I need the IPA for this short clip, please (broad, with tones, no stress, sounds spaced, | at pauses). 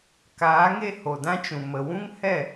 k aː˨˦ ŋ e˧ h o˨ d ã˦ t͡ʃ ũ˨ m ə˨ w ũ˦ ŋ h ɛ˦˨